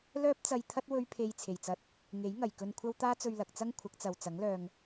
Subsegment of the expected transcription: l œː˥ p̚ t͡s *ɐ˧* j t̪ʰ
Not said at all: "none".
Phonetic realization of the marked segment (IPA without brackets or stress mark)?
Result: ɐ˧